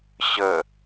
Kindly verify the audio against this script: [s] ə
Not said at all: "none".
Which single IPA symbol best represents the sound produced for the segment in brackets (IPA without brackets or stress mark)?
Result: ɕ